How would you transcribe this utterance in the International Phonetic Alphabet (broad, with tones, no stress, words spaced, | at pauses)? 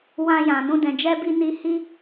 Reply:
wã˧jã˨ nũ˧dɛ̃˨ d͡ʒɛ˧bi˧ ni˧hi˦